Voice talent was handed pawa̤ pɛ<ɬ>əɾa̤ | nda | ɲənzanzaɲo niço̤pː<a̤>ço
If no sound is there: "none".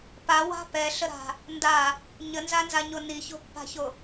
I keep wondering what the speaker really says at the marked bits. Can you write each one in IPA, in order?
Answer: ɬ, a̤

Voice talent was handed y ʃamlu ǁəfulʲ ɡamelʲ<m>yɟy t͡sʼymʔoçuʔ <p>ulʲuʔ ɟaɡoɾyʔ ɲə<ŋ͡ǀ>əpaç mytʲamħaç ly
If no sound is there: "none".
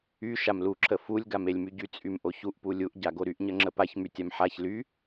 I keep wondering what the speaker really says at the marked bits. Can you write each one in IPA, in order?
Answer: m, p, ŋ͡ǁ

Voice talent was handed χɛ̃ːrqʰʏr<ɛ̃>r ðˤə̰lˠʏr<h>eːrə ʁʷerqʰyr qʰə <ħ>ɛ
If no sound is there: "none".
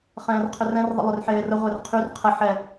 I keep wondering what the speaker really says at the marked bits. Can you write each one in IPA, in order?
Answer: ɛ̃, ħ, ħ

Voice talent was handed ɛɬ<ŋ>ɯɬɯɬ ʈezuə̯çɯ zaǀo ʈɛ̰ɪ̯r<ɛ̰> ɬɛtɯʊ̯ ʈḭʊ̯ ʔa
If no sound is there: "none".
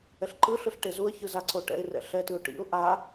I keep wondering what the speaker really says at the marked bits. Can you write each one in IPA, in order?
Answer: ǃ, ɛ̰

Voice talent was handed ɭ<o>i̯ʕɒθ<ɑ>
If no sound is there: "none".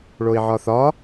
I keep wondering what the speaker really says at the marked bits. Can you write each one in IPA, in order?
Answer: o, ɒ

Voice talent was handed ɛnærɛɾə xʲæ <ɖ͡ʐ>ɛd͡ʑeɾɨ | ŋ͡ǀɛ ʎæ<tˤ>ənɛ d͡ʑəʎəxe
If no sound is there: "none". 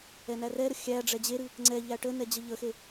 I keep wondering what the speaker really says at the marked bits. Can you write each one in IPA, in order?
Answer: ɖ͡ʐ, ʈ

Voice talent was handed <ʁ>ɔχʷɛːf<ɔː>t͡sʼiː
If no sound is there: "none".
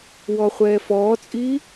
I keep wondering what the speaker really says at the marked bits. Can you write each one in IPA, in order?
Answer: w, ɔː

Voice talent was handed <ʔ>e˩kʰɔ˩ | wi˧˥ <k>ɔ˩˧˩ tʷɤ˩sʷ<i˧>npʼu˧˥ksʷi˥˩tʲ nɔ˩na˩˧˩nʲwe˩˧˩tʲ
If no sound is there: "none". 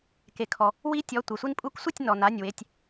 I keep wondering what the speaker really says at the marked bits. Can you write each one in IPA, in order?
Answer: k, tʲ, i˧

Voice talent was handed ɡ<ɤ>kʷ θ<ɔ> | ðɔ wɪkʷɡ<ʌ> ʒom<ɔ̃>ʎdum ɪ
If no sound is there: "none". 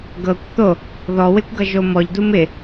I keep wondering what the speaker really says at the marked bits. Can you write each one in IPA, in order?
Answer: ɤ, o, ʌ, ɔ

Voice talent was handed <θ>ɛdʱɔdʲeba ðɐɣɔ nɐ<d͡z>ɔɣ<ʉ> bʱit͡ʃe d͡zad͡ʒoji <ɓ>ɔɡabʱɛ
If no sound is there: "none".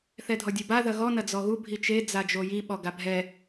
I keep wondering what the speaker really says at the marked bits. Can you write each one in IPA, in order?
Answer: θ, d͡z, u, ɓ

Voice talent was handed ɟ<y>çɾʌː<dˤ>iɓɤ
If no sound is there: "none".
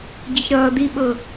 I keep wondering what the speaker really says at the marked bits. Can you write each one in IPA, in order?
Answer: i, d̪

